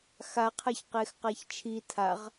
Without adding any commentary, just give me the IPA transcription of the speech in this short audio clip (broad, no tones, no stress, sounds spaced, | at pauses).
x a qʰ a ç q e x q a ç t͡ʃʰ i tʰ a ʁ